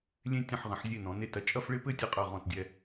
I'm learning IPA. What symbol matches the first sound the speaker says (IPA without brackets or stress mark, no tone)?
lʲ